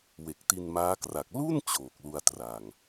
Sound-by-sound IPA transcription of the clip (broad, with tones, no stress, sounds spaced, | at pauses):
w e˨˩ k̚ t i˧ n m aː˦˥ k r a˨˩ k̚ l u˥˩ n t͡ɕ oː˨˩ k̚ l u˧ a̯ t r a˨˩ ŋ